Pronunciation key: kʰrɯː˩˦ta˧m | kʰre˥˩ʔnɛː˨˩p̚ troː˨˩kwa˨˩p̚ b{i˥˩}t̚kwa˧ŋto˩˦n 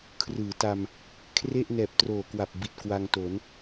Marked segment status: incorrect: i˨˩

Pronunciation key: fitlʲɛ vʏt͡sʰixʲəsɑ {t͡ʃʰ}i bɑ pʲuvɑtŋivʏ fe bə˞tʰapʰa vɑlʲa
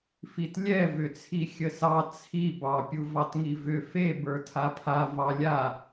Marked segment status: incorrect: t͡sʰ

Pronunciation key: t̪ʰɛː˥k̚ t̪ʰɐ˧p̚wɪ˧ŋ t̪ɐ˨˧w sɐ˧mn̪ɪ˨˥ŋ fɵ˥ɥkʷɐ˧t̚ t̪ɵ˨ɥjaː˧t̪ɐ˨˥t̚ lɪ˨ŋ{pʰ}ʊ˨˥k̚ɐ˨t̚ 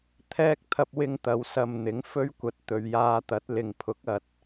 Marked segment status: correct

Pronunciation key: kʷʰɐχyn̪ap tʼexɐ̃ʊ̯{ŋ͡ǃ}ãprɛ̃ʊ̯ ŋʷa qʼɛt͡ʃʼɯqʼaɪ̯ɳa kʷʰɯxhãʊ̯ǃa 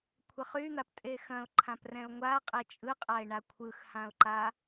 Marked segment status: incorrect: ǃʰ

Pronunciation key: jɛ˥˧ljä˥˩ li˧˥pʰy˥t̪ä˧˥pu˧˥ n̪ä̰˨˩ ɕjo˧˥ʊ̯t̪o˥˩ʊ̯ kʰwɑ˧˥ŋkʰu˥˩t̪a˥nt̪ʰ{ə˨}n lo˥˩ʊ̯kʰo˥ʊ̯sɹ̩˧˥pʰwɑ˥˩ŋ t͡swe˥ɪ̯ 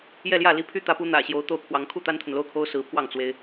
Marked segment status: correct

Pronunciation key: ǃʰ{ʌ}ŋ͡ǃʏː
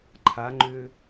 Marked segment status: incorrect: a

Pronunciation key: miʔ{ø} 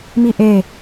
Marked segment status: incorrect: e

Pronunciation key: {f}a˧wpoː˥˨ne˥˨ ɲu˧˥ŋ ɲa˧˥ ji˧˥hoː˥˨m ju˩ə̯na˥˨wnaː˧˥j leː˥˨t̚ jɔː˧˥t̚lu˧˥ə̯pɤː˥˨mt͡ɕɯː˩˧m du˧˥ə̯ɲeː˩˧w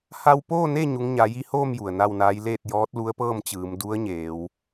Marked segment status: incorrect: h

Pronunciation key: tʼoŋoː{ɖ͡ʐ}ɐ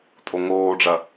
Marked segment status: correct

